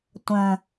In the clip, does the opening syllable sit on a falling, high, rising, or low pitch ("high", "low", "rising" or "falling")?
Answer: low